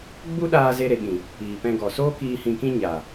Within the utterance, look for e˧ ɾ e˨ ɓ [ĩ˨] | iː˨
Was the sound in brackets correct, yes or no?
yes